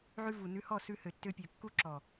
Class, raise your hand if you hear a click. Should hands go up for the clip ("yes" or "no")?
yes